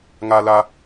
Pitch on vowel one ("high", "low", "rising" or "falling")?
low